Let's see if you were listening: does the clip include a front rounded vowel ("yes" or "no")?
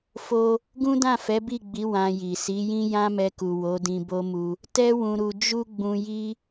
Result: no